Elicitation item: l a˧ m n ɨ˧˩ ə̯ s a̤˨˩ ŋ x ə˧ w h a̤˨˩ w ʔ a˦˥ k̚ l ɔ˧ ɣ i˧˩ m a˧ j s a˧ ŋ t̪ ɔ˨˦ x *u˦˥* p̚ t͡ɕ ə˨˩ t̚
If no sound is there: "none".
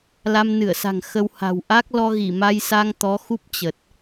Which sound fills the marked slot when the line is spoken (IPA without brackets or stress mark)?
u˦˥